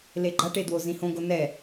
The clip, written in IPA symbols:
leɡ͡ǃaʈe dwozĩhõɡo nɛ

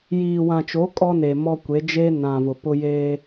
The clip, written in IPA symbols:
jiː˨wã˨t͡ʃo˨˦ kʼɔ˦ne˨ mɔ˦kʷe˨˦ d͡ʒe˦ nã˨ vʊ˨pʊ˦ jeː˦

